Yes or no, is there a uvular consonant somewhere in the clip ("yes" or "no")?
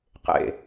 yes